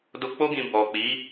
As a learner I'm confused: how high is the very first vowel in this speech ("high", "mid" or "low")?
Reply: mid